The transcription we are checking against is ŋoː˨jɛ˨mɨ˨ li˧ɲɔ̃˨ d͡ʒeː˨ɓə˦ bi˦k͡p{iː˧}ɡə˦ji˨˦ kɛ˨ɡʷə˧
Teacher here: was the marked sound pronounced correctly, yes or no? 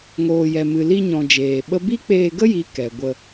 no